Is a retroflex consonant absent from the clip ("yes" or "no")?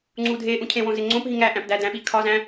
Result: yes